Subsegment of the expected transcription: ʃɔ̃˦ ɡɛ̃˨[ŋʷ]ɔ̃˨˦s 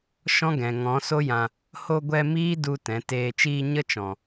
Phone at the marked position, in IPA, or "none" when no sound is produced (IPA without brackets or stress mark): ŋ